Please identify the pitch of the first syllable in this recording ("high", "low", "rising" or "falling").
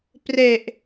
low